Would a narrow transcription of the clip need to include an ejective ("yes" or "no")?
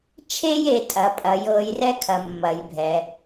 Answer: yes